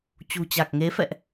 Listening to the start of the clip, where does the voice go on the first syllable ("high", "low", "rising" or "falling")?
low